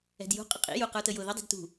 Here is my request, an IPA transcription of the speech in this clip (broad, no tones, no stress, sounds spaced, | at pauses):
ɛ̤ d j ṳ qʼ ə qʼ ḭ j u q ə˞ t ə j ʊ ð ʊ dˤ i̤ d t ṳ